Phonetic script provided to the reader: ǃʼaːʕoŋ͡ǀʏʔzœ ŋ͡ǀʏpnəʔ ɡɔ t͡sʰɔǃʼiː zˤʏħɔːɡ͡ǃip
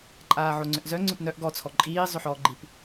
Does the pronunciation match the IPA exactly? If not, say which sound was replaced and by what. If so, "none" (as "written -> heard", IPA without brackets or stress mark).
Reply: ə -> œ